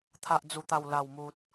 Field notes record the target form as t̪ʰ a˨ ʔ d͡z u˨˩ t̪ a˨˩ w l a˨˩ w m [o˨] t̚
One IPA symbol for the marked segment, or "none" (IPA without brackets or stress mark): u˨